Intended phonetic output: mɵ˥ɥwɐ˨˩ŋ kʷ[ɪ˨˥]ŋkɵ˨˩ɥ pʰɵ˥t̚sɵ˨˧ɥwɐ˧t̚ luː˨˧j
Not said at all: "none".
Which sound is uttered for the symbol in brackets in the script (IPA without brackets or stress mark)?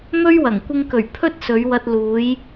ɪ˧